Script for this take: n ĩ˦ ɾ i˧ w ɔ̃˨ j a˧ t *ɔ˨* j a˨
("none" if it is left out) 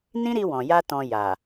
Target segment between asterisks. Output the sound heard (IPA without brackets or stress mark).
ɔ̃˨